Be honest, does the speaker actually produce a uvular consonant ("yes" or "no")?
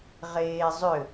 yes